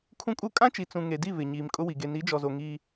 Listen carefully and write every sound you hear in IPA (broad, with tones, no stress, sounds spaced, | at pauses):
kʰ ũ˦ kʼ u˦ kʼ ã˦ t͡ʃ i˨ t͡s ũ˨ ŋ e˨ d i˦˨ β ɪ˨ ɲ iː˨ m kʼ ʊ˦ w i˨ ɡ e˨ n i˨˦ d͡ʒ ɔ˨ z o˨ ŋ i˦